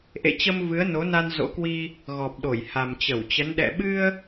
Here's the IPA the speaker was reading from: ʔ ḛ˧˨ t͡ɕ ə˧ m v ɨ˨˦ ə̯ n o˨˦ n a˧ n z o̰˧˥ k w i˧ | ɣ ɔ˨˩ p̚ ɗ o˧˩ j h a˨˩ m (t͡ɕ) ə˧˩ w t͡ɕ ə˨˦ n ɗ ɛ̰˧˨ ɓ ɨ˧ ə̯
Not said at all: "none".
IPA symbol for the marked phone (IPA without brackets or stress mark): t͡ɕ